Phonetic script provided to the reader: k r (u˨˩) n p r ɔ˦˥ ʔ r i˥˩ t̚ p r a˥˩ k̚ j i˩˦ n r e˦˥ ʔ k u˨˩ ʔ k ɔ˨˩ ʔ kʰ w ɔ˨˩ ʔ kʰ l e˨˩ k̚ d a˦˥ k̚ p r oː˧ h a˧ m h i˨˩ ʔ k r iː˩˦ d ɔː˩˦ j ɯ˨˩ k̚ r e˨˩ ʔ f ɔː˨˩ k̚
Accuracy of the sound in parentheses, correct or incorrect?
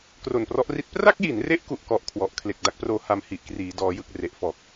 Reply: incorrect: o˨˩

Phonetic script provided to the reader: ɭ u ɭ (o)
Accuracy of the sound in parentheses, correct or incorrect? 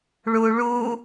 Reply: incorrect: u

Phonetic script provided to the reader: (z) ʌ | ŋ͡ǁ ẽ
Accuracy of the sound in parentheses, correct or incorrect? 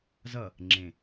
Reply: correct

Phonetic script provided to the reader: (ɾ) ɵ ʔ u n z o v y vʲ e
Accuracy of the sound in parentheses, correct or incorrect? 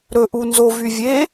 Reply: correct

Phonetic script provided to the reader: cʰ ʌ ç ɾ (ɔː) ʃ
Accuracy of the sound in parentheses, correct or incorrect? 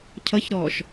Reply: correct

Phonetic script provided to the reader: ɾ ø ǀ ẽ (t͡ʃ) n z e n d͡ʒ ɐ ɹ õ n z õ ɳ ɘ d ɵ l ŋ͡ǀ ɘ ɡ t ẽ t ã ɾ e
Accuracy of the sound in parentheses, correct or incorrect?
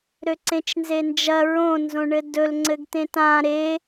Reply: correct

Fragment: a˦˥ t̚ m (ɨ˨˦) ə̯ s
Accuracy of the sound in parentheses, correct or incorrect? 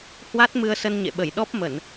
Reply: incorrect: ɨ˧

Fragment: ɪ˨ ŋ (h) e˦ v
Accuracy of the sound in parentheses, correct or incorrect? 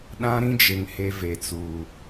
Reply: correct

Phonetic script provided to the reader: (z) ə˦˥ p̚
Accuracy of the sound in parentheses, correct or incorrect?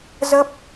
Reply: correct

